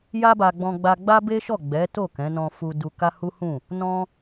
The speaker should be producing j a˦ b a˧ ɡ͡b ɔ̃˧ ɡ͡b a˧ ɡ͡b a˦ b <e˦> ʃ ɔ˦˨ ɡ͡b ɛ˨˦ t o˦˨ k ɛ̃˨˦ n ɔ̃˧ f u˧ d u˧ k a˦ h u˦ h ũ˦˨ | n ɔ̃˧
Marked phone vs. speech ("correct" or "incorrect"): correct